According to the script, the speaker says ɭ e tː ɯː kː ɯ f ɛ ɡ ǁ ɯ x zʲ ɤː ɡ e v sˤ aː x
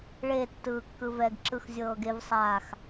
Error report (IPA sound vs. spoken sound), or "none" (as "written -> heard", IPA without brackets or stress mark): f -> v